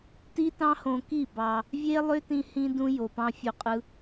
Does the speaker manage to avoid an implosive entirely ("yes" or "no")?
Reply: yes